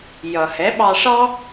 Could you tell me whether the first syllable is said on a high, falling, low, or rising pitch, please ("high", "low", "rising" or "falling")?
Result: low